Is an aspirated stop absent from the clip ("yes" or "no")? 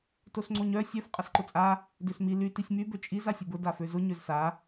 yes